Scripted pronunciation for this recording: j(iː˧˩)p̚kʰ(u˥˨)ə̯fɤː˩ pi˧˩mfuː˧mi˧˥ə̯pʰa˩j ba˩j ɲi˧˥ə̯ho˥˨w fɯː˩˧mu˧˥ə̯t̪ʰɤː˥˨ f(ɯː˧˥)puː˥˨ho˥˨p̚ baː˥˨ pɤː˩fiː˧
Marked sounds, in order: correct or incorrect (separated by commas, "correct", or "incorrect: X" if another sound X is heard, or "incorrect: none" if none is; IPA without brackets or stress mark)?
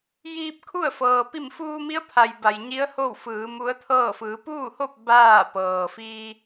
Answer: incorrect: iː˧, correct, incorrect: ɯː˩˧